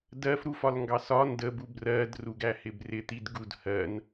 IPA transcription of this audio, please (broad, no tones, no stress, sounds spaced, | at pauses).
d ɜ f ɾ u f ɒ l ŋ ɡ ɑ s ɒ n d ə b u b r ɜ d r u ɡ æ h ɪ b r ɪ t̪ i d ɡ u d h ɜ n